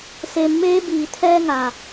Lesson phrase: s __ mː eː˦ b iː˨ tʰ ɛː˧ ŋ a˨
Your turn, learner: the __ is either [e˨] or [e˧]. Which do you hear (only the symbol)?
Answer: e˧